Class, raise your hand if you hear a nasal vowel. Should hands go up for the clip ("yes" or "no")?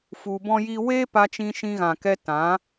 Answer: yes